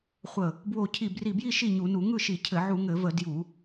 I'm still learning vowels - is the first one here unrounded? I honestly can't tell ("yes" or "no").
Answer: yes